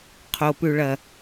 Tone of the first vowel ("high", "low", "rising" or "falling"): low